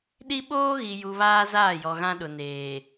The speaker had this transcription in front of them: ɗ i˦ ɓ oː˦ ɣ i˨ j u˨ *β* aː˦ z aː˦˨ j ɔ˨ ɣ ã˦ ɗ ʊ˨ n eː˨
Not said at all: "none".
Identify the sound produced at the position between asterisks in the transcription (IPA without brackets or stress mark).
β